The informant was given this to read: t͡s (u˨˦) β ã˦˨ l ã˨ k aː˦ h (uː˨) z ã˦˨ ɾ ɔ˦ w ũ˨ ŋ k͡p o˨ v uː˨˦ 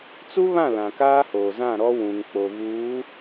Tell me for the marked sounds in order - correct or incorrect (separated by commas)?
incorrect, incorrect